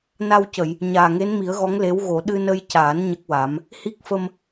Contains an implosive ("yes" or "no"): yes